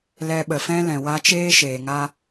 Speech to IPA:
l ɛ˧ ɓ ə˨ f ɛ̃˦ l ɛ̃˨ w a˧ t͡ʃ eː˦ ʃ eː˨ ŋ a˦

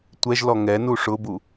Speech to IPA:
tʷ ɛ ʒ l ɔ ŋ ɛ n u ʂ ʊ b u

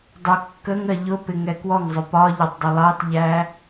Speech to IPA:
dˤ ʊ kː ə ŋ ɜ ʎ ʊ p ɪ ŋ ɛ k w ɔ ŋ zˤ ʊ p ɒ ʎ ɔ tˤ dˤ ʊ lˠ ɑ t ʎ æ

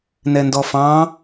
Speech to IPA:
n ɛ n d ɔ f ɑ̃

